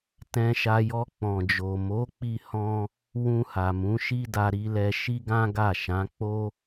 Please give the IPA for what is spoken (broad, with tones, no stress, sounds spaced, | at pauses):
t ɛ̃˧ ʃ a˧ j ɔ˧ k͡p ɔ̃˨ d͡ʒ o˨ m o˨˦ k͡p i˧ h ɔ̃˦ | w ũ˧ h a˨ m ũ˨˦ ʃ i˦ d a˧ ɾ i˦ l ɛ˦ ʃ i˦ ɡ ã˦ ɡ a˦˨ ʃ ã˨˦ k͡p o˦